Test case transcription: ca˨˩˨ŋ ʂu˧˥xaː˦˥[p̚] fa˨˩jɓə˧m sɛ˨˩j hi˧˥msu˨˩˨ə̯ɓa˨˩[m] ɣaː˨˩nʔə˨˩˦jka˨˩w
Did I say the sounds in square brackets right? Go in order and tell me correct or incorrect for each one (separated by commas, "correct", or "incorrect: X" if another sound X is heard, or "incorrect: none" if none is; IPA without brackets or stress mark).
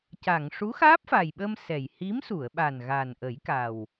correct, incorrect: n